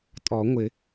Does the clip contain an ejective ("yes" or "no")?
yes